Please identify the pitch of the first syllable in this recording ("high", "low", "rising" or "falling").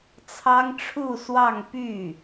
high